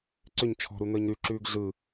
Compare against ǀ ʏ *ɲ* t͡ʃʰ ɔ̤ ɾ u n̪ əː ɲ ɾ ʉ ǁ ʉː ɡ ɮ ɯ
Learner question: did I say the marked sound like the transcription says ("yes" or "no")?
yes